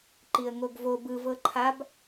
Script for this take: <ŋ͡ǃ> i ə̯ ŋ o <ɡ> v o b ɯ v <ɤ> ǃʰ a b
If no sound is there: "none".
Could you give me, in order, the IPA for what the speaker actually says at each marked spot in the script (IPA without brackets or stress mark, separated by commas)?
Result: ǃ, ɡ, ɤ